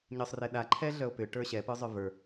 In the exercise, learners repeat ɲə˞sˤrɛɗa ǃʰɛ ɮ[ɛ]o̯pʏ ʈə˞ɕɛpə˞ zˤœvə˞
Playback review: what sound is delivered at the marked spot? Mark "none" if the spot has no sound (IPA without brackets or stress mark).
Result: œ